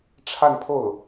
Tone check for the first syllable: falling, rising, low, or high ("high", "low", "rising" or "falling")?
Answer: falling